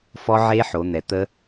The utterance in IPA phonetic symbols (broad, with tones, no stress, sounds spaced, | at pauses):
f ɔ˦˥ ʕ e˦˥ ħ o˨˦ n̪ ɛ˨˦ t̪ ə˦˥